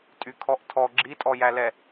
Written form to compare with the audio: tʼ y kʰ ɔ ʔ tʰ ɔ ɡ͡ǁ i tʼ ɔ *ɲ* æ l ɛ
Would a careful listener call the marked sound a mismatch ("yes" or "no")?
yes